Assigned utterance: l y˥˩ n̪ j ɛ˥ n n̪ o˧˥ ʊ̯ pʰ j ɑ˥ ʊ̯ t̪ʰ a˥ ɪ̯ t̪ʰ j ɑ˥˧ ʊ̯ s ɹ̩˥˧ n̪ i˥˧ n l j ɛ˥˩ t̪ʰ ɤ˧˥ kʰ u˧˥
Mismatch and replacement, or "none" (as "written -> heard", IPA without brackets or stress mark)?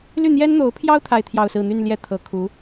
i˥˧ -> y˥˧